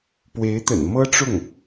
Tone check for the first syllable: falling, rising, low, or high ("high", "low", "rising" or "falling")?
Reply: rising